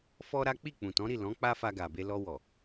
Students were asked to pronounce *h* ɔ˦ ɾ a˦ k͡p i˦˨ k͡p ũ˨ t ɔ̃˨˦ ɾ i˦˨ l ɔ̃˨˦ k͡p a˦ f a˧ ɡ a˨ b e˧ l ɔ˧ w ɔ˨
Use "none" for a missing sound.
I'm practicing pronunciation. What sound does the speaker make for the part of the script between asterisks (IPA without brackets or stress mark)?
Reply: f